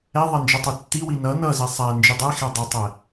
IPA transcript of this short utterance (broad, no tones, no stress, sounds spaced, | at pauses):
ɛ ðˤ ɛ n d͡ʒ ə tˤ i tː i w i n ʌ n ʌ z i sˤ æ n d͡ʒ i dˤ ɛ x ɛ dˤ i tˤ ɛ